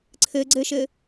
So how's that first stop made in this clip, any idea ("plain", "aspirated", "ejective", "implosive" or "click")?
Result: click